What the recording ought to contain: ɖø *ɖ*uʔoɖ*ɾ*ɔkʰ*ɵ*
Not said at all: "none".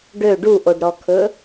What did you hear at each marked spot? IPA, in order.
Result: ɖ, ɾ, ɵ

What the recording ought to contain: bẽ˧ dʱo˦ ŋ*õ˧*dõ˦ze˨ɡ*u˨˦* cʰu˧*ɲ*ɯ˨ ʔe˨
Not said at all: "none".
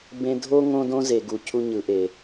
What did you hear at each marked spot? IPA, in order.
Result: õ˦, u˨, ɲ

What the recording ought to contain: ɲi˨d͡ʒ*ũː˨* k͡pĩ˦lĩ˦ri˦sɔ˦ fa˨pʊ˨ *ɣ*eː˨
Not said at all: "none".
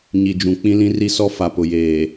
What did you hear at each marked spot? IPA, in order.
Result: ũ˨, j

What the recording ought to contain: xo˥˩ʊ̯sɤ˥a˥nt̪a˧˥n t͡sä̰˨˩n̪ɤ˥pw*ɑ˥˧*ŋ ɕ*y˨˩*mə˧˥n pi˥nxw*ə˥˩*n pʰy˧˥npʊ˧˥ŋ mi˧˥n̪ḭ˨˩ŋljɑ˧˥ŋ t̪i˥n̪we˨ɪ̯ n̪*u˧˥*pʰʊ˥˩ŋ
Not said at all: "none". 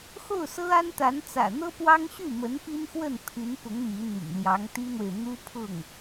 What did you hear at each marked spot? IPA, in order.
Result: ɑ˥, y˥˩, ə˥˩, u˥

